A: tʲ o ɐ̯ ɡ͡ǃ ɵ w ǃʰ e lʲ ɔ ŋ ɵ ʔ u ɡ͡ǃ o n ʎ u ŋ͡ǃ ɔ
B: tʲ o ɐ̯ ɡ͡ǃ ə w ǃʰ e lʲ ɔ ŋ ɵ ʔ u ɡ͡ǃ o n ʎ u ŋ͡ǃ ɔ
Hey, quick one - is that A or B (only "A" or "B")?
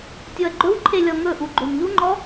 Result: A